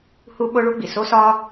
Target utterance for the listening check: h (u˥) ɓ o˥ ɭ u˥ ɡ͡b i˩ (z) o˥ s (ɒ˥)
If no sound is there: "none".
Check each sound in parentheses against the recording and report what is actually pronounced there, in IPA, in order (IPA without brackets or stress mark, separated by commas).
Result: u˥, s, ɒ˥